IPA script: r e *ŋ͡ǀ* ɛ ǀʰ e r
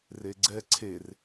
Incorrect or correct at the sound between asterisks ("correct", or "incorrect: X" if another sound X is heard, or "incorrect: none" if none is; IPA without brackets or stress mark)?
incorrect: ɡ͡ǀ